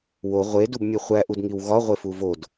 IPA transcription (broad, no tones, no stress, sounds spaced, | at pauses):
w o ʁʷ e d u b mʲ e χʷ æ ʔ u d ŋ i w ɣ ɒ ʁʷ e f u v o d